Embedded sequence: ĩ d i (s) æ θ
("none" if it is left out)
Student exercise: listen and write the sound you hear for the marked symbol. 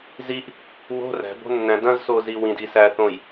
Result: s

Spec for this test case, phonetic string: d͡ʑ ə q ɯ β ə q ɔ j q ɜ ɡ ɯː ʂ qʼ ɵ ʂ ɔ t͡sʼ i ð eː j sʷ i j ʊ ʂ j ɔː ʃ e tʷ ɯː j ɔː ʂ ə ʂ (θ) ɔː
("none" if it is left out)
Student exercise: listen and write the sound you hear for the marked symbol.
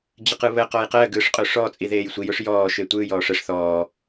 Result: θ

